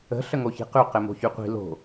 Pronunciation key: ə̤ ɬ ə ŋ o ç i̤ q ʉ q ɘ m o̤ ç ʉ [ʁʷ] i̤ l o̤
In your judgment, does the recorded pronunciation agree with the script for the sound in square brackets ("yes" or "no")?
no